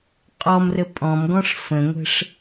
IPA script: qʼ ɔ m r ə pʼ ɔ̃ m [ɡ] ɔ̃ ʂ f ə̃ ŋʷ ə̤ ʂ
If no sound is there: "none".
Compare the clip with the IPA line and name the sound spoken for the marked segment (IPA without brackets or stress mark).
ɡ